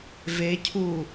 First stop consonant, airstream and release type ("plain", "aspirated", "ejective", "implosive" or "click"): aspirated